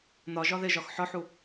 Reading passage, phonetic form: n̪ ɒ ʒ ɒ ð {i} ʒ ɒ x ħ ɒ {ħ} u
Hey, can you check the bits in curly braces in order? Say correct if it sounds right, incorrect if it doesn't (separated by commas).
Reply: incorrect, correct